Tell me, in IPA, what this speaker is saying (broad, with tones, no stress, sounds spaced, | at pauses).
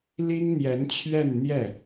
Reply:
l i˥ ŋ n̪ j ɛ˧˥ n t͡ɕʰ ɥ ɛ˥˧ n n̪ j ɛ˥˩